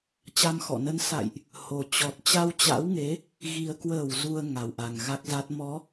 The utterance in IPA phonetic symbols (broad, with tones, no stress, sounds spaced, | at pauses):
t͡ɕ a˧ m x ɔ̰˧˨ n ə˧ n s a̰˧˨ j ʔ | h o˨˩ t͡ɕ ɔ˨˩ t̚ t͡ɕ a˧ w t͡ɕ a̰˧˥ w ŋ e˨˦ | ɣ i˨˩ ə̯ k w əː˧˩ w z u˨˩ ə̯ ŋ a˨˩ w ʔ a˨˩ ŋ ɣ a˦˥ k̚ z a˦˥ t̚ m ɔ˨˦